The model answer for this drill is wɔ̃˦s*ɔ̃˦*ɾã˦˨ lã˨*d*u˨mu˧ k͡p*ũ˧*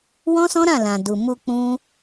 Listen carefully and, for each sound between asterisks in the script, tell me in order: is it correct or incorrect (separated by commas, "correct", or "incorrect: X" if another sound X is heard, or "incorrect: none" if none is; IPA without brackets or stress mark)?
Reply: correct, correct, incorrect: ũ˦